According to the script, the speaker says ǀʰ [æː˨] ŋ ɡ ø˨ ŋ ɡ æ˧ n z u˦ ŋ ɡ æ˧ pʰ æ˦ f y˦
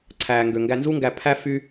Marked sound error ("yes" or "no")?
no